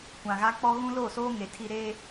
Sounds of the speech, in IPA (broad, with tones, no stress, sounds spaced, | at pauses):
kʷ ã˨ ɣ a˦ k͡p ɔ˦ ɣ ũ˦ l o˦˨ s oː˦ ŋ e˨ tʰ i˦ ɾ eː˦